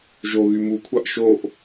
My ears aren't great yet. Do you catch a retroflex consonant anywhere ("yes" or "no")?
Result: no